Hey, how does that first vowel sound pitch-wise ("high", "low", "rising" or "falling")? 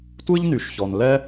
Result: high